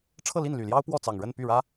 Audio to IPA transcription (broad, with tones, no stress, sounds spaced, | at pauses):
ʈ͡ʂʰ ɤ˥˧ l i˥˩ n l y˨˩ l j ɑ˥ ʊ̯ p w ɔ˥˩ t͡s ɑ˨˩ ŋ ɻ ə˥˧ n p y˥˩ ɻ ä˥